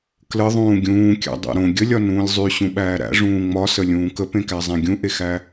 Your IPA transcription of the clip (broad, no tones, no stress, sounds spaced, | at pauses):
k l ə ðˤ ũː ɡʲ ũː kʲ æ̰ dˤ æ̰ ɾ õ ɡʲ ə lʲ ɒ n ũː lʲ zˤ y ɕ ũ ɓ æː ɾ æ̰ ʐ ũː ŋ͡m ɒ s ə lʲ ũː k ə p ẽ k æ zˤ ẽ ɡʲ ũ ʔ e x æ